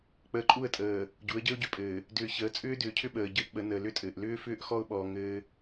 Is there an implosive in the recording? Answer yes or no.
yes